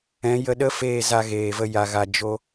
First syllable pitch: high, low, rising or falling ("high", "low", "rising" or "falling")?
rising